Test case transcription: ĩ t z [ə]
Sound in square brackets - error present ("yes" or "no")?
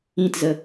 no